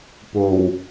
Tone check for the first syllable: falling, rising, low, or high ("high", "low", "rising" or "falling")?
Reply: low